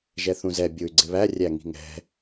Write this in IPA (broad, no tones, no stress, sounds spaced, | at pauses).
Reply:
ʒ ɛ θ ũ z ɛ bʲ u y̯ ɡ͡ǀ ɪ β æ rʲ æ ŋ i̤ ŋ ɛ̤